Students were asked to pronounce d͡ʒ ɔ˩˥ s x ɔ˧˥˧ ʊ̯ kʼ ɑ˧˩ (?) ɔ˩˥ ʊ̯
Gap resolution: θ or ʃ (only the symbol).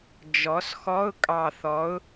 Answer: θ